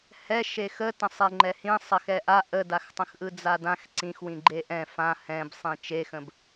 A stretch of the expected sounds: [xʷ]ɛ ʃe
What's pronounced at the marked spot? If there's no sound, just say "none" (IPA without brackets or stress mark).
h